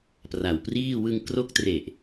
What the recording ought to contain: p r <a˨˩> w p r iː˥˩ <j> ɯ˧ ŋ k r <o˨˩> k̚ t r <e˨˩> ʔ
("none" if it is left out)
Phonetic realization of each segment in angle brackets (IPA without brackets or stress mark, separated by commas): a˨˩, w, o˦˥, e˨˩